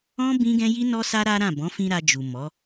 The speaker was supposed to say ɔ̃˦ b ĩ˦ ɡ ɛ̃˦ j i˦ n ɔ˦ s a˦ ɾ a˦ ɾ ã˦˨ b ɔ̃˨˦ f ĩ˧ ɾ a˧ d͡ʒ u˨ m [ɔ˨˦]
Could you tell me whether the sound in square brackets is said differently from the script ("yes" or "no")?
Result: no